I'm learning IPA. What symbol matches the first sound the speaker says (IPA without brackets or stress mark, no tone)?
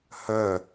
h